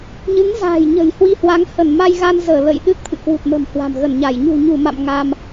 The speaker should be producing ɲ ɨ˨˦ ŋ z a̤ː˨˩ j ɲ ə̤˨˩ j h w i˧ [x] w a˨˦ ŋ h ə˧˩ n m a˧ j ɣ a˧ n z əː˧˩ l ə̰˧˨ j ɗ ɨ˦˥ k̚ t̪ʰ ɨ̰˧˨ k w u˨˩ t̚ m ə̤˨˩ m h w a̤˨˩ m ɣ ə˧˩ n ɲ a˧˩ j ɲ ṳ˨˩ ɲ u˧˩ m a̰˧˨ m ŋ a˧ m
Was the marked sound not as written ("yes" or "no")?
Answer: yes